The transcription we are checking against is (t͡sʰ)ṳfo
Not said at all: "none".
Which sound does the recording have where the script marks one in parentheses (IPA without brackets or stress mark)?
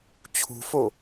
t͡ɕʰ